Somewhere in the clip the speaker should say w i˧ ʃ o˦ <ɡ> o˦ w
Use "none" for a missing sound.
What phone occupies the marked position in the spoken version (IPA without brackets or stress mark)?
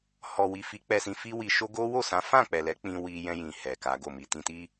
ɡ